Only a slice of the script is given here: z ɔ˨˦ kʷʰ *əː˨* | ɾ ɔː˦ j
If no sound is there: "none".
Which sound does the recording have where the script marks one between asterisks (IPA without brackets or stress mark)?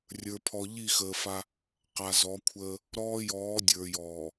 əː˦